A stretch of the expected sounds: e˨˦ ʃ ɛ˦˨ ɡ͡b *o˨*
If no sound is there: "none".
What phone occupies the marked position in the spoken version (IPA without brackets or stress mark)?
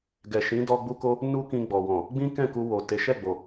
o˨